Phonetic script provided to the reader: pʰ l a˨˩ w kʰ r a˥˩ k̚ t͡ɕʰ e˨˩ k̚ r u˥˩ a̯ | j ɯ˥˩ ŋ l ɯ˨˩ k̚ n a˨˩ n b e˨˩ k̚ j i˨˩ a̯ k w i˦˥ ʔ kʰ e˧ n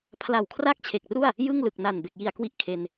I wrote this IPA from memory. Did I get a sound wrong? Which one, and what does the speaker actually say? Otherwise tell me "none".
none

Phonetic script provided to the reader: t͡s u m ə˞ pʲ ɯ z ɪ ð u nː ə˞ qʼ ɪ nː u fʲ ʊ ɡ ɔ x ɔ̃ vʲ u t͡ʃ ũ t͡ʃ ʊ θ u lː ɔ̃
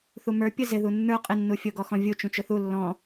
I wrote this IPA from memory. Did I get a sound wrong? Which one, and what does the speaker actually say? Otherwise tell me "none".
t͡s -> θ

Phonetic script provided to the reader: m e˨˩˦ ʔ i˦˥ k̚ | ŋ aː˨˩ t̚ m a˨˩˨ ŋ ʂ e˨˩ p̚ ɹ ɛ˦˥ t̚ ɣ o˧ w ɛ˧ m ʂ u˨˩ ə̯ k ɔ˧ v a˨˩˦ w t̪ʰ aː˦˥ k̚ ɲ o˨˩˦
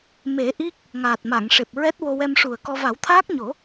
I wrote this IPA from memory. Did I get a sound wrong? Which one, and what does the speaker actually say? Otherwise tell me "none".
ɣ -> w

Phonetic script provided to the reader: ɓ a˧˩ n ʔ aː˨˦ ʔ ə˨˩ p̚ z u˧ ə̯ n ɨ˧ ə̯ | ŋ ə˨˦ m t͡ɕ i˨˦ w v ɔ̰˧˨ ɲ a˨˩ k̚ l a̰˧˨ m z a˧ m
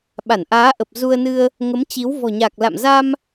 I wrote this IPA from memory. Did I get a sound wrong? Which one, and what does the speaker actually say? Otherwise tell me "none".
ɔ̰˧˨ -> ɔ̤˨˩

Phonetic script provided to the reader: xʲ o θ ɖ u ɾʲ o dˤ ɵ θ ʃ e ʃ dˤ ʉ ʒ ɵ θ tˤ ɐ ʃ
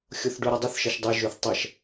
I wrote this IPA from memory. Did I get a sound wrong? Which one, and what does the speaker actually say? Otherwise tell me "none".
none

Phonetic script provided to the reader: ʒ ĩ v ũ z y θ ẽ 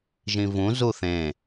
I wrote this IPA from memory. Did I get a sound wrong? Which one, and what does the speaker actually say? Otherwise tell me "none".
y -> u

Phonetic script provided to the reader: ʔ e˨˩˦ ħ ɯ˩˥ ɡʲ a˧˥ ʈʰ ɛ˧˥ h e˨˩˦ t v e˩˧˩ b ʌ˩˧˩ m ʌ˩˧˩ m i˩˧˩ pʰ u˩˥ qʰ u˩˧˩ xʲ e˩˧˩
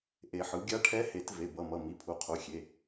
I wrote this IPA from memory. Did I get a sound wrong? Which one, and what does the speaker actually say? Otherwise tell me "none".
none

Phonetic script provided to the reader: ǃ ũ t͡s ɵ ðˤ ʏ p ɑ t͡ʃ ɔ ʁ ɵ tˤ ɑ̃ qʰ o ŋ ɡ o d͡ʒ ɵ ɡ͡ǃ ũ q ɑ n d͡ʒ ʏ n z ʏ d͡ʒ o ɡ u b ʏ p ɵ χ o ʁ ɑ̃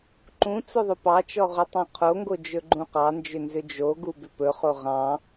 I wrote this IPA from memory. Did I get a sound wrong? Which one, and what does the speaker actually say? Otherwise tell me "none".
none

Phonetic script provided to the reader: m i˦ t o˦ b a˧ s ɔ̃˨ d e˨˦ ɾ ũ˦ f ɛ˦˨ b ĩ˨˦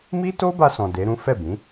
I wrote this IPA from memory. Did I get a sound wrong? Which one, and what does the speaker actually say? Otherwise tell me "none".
none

